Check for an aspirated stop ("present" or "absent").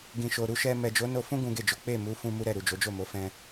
absent